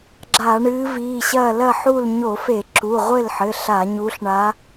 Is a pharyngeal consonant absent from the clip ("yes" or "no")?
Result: no